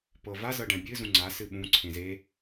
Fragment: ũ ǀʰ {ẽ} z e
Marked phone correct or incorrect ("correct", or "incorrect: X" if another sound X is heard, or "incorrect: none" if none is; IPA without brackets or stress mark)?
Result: correct